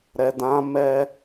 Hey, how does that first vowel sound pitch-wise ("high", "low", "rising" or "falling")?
low